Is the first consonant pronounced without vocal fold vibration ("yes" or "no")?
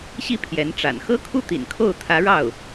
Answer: yes